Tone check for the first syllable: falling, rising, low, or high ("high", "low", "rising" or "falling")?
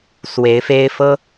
rising